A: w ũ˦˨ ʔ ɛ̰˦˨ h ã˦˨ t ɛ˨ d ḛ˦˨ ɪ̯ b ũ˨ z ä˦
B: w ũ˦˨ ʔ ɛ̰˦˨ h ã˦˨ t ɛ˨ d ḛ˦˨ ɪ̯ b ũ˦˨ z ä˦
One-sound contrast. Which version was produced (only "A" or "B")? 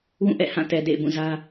B